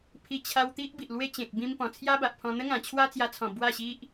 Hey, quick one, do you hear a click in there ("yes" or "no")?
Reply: no